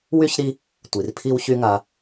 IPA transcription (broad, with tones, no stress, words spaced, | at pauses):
wy˥çɾi˦ | tʷi˩r pʰi˥wçy˥ŋa˦